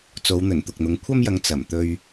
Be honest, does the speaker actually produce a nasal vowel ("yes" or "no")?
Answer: no